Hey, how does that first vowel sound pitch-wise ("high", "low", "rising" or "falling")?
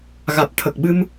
low